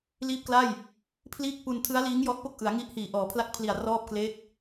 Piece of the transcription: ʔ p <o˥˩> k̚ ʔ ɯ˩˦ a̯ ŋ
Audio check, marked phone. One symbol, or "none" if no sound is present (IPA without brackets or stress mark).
o˥˩